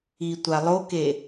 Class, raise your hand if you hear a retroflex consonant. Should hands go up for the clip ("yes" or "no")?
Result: no